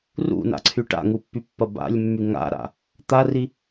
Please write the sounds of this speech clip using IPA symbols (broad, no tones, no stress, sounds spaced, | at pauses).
r ṵ n a̰ ǀʰ y ʈ a̰ ŋ u pː y pː ɐ b a̰ lʲ mː y ŋ a̰ ɾ a̰ | t̪ a r i